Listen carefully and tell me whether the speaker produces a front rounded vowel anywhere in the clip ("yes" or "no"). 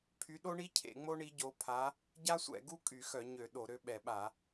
yes